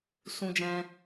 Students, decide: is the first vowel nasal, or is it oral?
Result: nasal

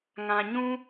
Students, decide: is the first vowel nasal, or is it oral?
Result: nasal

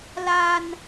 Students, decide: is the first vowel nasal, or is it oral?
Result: oral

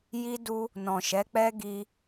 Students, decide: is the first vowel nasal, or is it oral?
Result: oral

